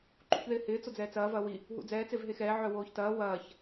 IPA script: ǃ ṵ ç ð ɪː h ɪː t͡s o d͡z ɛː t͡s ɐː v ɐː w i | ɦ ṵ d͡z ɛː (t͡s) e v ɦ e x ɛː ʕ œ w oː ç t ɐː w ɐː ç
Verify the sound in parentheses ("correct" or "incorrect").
correct